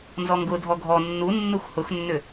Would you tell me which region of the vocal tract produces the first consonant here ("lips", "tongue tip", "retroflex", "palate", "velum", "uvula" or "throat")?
tongue tip